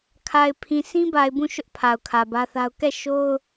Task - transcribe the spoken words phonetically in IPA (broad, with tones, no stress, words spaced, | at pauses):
kʰa˨ɪ̯ pʰĩ˨sʰĩ˦ba˨ɪ̯ bũ˦˨ʃʊ˦ʔ pʰa˨ʊ̯kʰä˨bä˦θa˦ʊ̯ kɛ˦˨ʃo˦ʊ̯